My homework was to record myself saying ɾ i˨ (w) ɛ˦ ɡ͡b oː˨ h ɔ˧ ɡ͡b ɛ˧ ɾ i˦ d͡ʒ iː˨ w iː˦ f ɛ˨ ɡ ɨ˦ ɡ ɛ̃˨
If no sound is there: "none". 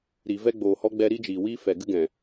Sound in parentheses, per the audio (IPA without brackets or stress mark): v